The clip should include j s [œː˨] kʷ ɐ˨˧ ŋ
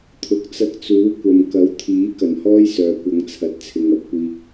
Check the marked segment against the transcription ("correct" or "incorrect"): correct